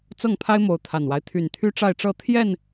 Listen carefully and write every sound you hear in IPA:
t͡s ɤ˥˨ ŋ pʰ a˦ ɪ̯ m o˨˦ ʊ̯ t̪ʰ a˨˩ n w a˦ ɪ̯ t̪ʰ y˨˩ n t̪ʰ y˦ ʈ͡ʂ a˥˨ ɪ̯ ʈ͡ʂ ɤ˥˨ t̪ʰ j ɛ˥˨ n

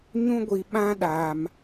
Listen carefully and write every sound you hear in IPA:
ɲ ũ˦ ɡʷ i˨ ɓ ã˦ ɗ aː˨ m

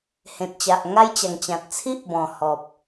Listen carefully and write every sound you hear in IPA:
h ẽ˨ t̚ t͡ɕ a˨ ʔ ŋ a˦ j t͡ɕ a˨˩ ŋ t͡ɕ ã˨ t̚ t͡sʰ i˦ ʔ b ɔ̃˨˩ h ɔ˨ p̚

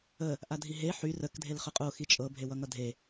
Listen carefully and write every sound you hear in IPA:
ə | ʔ a dʱ i ɦ e ħ y r ə k dʱ e l χ ə qʼ o x i t͡ʃʼ ɤ bʱ e w ʌ ŋ ʌ dʱ e

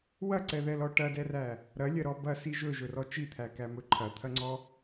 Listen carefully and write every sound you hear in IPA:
w ɐ ǀ ɛ ð ɛ l ɔ ʈ ɐ d ɛ r æ | ɾ ɐ lʲ ɐ ɾ ɔ b ɐ s i ʒ ɵ ʒ ɵ r ɔ t͡ʃ i t̪ʰ æ k æ m ɵ ǃʰ ɐ t̪ʰ ɐ ŋ͡ǀ ɔ

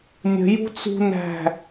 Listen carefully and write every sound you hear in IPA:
nʲ ə̤ j ṳ t͡s ṳ n æ̤

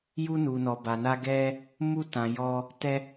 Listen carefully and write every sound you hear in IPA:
j u˧ n u˨ n ɔ˨ b a˨ n a˧ ɡ ɛ˧ | m u˧ t ã˨ j ɔ˧ | t ɛ˧

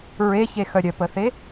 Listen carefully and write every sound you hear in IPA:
ɹ e ç e x œ ɾʲ œ p ə θ e

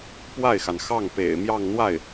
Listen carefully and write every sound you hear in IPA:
p w a˥˩ ɪ̯ x a˩ n x ɑ˥˩ ŋ p ḛ˨˩ ɪ̯ m j ɑ˥˧ ŋ n̪ w a˥˩ ɪ̯

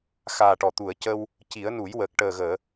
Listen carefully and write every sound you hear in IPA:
x aː˨˩ ʈ ɔ˨˩˨ t̪ u˨˩˨ ə̯ c ə˧ w | c i˨˩˦ ə̯ n u˨˩˦ j w ə˨˩ k̚ ʈ əː˨˩ ɣ əː˨˩˨

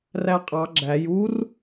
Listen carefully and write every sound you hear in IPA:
r æ qʼ ɑ ɡ͡ǁ æ j u r

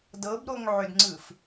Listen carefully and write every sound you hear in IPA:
d ɤ b ɾ o ŋ ʕ ʏ d ŋ͡ǀ ɯ f

